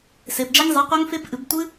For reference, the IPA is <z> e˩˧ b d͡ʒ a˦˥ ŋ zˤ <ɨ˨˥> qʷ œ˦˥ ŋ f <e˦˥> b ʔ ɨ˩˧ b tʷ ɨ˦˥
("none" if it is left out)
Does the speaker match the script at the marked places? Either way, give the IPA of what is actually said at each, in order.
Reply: s, e˨˥, e˦˥

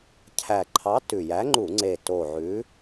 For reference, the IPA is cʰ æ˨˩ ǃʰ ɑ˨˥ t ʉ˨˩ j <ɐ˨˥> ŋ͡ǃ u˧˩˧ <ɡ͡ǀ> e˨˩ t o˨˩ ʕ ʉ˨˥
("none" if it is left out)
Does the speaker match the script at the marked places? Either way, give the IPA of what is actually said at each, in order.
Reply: æ˨˥, ŋ͡ǀ

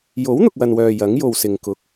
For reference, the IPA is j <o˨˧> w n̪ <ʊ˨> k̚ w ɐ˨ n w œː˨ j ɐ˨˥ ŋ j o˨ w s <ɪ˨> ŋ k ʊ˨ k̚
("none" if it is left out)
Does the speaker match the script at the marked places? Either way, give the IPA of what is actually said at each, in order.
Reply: o˨˥, ʊ˨, ɪ˨

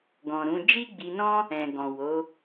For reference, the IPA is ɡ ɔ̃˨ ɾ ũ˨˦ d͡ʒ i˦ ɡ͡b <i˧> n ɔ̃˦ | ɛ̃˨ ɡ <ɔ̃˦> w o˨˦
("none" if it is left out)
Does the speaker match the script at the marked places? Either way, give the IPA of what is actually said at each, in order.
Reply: i˧, ɔ̃˨

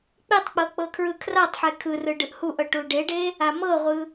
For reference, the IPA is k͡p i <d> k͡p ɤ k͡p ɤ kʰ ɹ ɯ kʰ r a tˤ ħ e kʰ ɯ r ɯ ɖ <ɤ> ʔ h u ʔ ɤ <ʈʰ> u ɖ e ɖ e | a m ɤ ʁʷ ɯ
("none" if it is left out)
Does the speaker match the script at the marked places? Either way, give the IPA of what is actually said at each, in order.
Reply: tˤ, ɯ, ʈ

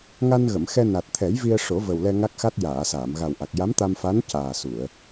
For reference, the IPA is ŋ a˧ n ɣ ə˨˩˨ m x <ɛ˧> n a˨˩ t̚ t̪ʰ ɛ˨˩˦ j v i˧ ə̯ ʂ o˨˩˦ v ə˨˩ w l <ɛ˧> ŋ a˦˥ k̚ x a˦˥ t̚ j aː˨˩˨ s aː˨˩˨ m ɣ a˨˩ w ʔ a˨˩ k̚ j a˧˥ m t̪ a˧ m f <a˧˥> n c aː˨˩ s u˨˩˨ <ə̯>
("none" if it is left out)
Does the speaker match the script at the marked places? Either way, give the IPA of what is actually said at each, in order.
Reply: ɛ˧, ɛ˧, a˧˥, ə̯

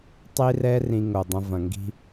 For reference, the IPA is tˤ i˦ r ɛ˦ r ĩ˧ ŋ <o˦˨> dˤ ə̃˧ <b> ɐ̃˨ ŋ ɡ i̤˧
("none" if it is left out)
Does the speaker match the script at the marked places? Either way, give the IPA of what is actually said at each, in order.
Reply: o˨, v

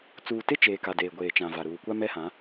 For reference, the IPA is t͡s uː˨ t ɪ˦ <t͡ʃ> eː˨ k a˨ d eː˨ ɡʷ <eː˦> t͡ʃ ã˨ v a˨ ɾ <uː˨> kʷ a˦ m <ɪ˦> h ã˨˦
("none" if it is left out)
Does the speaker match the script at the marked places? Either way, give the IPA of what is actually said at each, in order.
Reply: t͡ʃ, eː˨, uː˨, ɛ˦

